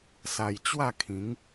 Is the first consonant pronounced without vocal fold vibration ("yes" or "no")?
yes